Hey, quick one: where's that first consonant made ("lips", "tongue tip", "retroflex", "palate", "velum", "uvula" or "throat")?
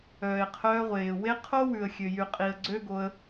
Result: uvula